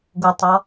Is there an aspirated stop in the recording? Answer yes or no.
no